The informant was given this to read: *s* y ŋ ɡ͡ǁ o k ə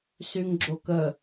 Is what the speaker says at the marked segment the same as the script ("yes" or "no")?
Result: yes